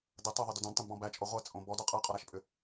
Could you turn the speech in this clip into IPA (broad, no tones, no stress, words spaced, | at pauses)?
də tˤʏðˤʏdʏ dõdtˤɛ̃dbɔ̃ bæt͡ʃʼo ʁʷɛt͡sʼõ bɔdɔ qʼɛqʼɔɾæʃpʼʏ